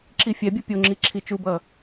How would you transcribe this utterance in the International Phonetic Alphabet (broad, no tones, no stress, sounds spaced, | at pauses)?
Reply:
ǁ i fʲ ɛ bʲ ɯ pʲ o ŋ͡ǁ i ǁʰ i t͡ʃ u b ʌ